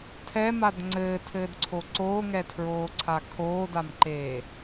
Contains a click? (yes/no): yes